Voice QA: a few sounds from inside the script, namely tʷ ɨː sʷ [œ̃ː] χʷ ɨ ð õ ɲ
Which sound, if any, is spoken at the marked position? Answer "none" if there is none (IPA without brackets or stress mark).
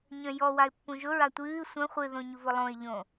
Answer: œ̃